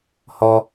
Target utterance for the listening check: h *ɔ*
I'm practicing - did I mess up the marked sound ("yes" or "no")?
no